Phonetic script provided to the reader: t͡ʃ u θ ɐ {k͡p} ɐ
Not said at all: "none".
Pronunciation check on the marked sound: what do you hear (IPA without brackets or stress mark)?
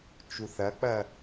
k͡p